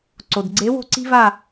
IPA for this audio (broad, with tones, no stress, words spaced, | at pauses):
ǀo˩dɡ͡ǀe˨˦ wo̤˦˨ǀi̤˦va˦˨